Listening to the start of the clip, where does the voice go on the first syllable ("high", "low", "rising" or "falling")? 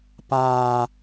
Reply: high